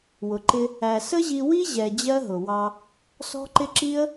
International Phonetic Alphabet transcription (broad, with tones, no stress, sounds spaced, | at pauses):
w ʊ˨ ǃ ɪ˧ | æ˨ s ə˦ ʑ i˧ w i˦ ʑ ɛ˨ d͡ʑ ɜ˦ ɦ ʊ˨ w ɑ˧ | s ɔ̤˦ ǃ ɪ˦ ǁ i˦ ə̯